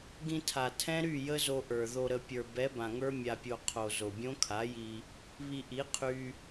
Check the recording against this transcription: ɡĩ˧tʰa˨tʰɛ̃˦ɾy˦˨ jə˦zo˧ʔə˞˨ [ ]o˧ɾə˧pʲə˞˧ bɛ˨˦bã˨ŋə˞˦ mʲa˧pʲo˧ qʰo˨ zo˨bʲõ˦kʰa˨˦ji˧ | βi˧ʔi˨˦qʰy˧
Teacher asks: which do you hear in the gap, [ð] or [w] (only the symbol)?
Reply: ð